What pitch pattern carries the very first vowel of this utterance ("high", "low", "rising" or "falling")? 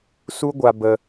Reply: high